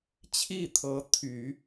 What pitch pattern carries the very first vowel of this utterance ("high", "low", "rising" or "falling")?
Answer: falling